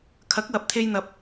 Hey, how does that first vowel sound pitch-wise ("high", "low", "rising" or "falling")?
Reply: rising